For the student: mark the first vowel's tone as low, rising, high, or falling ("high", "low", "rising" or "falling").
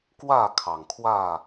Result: falling